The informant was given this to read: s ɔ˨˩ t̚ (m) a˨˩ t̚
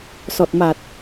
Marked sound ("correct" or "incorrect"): correct